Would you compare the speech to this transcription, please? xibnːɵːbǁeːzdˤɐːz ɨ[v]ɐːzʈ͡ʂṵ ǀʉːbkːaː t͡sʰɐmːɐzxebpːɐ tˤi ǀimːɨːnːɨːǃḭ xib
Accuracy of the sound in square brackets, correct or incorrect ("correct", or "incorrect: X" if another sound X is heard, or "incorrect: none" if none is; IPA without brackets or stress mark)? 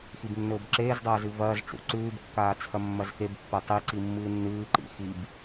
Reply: correct